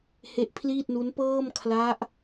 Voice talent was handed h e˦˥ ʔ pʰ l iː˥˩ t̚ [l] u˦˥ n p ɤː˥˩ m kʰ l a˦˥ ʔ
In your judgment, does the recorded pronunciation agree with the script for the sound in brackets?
no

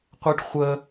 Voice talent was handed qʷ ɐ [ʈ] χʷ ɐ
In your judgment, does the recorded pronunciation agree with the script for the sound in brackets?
yes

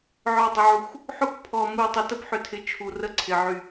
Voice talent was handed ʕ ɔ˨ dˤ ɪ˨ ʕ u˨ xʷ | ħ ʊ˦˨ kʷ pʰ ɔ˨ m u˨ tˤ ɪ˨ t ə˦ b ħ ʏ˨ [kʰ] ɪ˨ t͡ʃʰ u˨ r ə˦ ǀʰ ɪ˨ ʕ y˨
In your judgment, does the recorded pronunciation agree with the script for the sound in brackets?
no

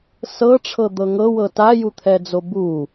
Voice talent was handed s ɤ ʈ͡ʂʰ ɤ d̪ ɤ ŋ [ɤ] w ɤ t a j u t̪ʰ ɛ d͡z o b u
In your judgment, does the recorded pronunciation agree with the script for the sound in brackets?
yes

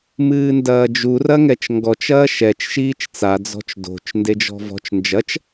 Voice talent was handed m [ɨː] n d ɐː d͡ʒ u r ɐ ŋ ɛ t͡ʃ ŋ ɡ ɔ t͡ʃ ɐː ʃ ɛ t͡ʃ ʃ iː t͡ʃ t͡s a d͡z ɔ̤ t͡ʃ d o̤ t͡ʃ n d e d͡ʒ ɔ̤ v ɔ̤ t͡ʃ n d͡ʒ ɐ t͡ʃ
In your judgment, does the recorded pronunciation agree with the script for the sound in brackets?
yes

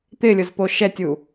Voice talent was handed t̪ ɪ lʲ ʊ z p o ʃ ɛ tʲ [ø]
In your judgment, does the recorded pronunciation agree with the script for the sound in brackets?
no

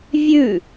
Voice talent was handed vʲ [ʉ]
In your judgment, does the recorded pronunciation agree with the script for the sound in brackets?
yes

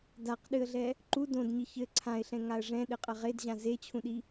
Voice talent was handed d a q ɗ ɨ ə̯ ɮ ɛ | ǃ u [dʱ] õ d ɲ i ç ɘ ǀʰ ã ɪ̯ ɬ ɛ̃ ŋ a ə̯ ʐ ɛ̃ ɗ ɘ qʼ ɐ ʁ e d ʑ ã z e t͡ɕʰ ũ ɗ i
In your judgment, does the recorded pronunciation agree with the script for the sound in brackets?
no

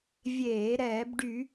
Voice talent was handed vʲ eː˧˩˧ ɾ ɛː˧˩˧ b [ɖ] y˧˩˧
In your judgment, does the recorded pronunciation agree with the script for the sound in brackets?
yes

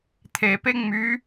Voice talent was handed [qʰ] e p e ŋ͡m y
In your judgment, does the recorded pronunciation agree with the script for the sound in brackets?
no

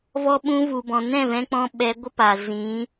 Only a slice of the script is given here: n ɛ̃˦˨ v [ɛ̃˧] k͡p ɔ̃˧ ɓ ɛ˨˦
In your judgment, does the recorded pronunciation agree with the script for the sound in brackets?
yes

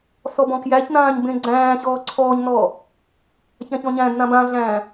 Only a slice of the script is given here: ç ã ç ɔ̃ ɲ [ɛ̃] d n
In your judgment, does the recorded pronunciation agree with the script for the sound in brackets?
no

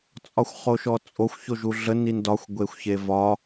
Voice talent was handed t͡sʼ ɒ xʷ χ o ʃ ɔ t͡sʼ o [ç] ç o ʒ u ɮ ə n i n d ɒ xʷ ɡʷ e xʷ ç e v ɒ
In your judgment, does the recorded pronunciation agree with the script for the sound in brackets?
no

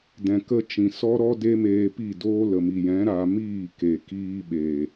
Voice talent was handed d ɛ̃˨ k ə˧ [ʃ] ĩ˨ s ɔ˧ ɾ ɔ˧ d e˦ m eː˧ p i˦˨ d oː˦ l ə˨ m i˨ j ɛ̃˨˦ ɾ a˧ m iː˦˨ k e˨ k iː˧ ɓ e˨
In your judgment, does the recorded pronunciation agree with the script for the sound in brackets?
no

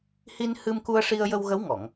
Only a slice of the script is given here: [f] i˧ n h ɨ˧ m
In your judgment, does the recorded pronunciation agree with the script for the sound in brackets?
no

